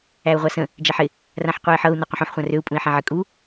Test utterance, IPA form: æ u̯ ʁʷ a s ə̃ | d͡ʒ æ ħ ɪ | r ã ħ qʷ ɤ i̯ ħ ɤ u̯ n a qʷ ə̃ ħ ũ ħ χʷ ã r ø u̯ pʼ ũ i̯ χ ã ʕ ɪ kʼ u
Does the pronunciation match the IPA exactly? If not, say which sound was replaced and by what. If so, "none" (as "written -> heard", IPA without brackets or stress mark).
χ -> ħ